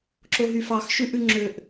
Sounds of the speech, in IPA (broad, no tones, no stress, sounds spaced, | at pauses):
ǁ o ɦ y f ɑ x ʃ ʉ ʔ ʉ ŋ͡ǁ ø ʔ